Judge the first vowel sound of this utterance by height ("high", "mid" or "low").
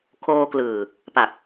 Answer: mid